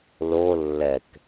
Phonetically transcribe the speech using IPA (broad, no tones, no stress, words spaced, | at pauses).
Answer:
lo lːɛk